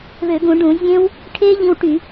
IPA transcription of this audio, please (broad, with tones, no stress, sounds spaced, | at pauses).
β ø˧˩˧ ɡ ũ˧˩˧ ɖ ũ˧˩˧ zʲ ẽ˦˥ w | ʈʰ e˦˥ ʎ ĩ˧ w ʈ y˧˩˧